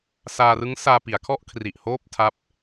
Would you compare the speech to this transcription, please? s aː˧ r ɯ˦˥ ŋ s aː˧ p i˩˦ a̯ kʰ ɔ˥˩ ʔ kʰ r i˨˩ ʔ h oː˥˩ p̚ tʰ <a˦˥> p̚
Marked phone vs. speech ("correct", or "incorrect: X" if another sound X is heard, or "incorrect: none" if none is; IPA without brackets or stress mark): correct